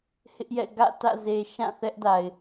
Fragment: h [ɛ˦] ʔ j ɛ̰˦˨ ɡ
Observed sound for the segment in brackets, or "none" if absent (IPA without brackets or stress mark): ɪ˦